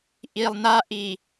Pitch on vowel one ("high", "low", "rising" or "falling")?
low